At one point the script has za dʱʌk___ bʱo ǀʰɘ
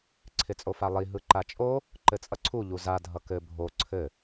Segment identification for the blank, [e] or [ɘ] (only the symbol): ɘ